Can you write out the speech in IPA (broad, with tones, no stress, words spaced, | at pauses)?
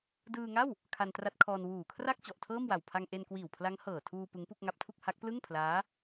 dɯː˧ŋa˥˩w | kʰa˧ntra˦˥t̚kʰɔː˧n wuː˨˩kʰra˥˩k̚ t͡ɕɔ˨˩ʔtʰɤː˥˩mwa˨˩wpʰa˧ŋ ʔe˧nkwiː˨˩wpʰla˦˥ŋ hɤː˨˩tʰuː˧ pɯ˦˥ŋpu˥˩k̚ŋa˦˥p̚tʰu˥˩k̚ ha˦˥k̚plɯ˥˩ŋpʰlaː˦˥